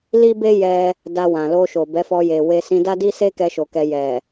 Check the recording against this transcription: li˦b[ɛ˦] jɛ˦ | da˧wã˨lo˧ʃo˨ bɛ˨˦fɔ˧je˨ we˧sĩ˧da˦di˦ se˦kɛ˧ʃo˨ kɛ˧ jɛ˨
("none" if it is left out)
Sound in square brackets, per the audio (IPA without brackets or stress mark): e˦